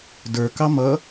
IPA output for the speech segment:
d ə˞ k ɑ m ʌ

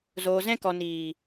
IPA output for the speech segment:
z oː˨ z ɛ̃˧ k ɔ˨ n iː˨

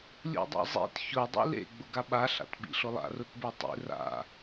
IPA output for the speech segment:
lʲ ṵ dˤ a̰ zˤ ḭ t ç ʊ dˤ ḭ l ḛ ɡ͡b ʊ ɡ a ɓ a ɬ a̰ t ɓ ḭ ɬ ʊ lˠ a̰ r ʊ t b e tˤ ḭ r a̰

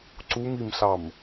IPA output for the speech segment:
ǀ u m i m ɬ ɑ m

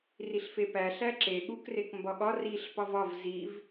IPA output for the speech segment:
r i ɬ f e p æ ɬ æ ǁ e ɠ u k r e k m b ɒ ɠ ɒ r i ɬ p ɒ v ɒ v z i v

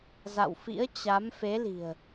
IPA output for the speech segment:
z a̰˧˨ w f ḭ˧˥ ə̯ t͡ɕ a˨˦ m f e˨˦ l i̤˨˩ ə̯

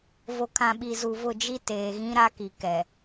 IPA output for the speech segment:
v o˨ kʰ ã˨ ɓ i˨ z u˨ v ʊ˦˨ d͡ʒ i˦ t eː˨ ɣ ĩ˦ ɾ a˦ k i˨ k ɛ˨

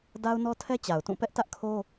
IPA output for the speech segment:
d a˦ ʊ̯ n ɔ˦ tʰ ɛ˦ t͡ɕ a˨ ʊ̯ t ũ˦˨ p ɛ˦ ʔ t ä˦ ʔ kʰ o˦

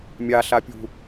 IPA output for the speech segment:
mʲ a ɬ a pʲ ṳ

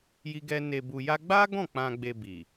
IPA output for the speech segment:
j i˦ ɡ ɛ˦ n e˧ b u˧ j a˦ ɡ͡b a˦ ɡ ɔ̃˦˨ k͡p ã˧ ɡ͡b e˧ b i˨

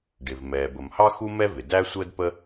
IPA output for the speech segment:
ɖ ɪ˩ v m ɛː˩ b ə˩ m h ɑ˥ x u˥ m ɛ˥ v ɪ˩ d æ˥ sʷ əː˥ d p ə˥

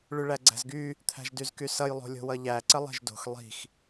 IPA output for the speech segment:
ɭ y ɭ æ ɡ͡ǀ æ̤ z ɡ y | t̪ʰ æ̤ ʒ d y z k y s ʌ j lˠ o̤ lʲ o̤ w ʌ ʎ æ ǀ ə lˠ e̤ ʒ d o̤ x lˠ i̤ x

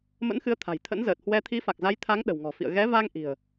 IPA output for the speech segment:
m ə̰˧˥ n x ɨ˨˦ ə̯ t̪ʰ a̤˨˩ j t̪ʰ ə̰˧˥ n z əː˨˩ t̚ h w ɛ˧ t̪ʰ i˨˦ f a˨˩ k̚ z a˨˦ j t̪ʰ a˨˦ ŋ ɗ ə̤˨˩ w ŋ ɔ̤˨˩ f ḭ˧˨ ə̯ ɣ ɛ˨˦ v a˧ ŋ ʔ i̤˨˩ ə̯

